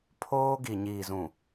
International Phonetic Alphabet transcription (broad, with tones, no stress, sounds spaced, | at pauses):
pʰ oː˦ ɡ i˨ ɲ iː˨ z ũ˨